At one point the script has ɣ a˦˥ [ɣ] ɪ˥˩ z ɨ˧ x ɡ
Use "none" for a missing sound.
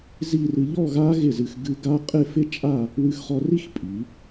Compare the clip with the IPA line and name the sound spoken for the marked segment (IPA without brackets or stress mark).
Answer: ɣ